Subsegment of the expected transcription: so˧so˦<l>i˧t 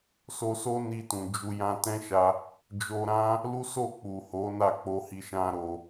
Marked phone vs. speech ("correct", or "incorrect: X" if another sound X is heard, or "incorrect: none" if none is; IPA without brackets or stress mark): incorrect: n